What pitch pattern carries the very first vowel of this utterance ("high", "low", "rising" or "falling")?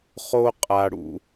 high